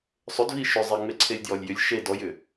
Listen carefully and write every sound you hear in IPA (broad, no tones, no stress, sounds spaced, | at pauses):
sˤ ʏ d v i ʃ ʏ zˤ e ŋ͡m e ǀʰ e lʲ d j ɔ lʲ j ʏ lʲ ʃ e d ɔ j ʏ